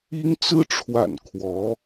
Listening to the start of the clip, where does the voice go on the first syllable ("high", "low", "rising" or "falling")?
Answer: high